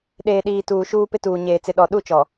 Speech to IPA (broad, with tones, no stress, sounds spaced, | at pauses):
ɗ eː˨ ɗ iː˨ t uː˨ ʃ uː˦ p ɪ˦ t uː˨ ɲ eː˨ t͡s ɪ˨ ɗ ɔ˨ ɗ u˦˨ t͡ʃ ɔ˨